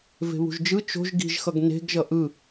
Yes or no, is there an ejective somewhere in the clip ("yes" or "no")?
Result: no